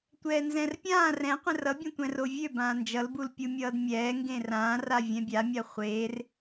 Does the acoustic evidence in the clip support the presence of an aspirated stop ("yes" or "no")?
no